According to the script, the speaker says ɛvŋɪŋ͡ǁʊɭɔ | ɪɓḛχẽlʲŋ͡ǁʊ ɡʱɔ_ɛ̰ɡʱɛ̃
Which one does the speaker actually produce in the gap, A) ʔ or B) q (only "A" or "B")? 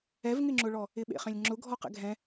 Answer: B